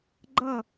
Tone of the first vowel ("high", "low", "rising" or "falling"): falling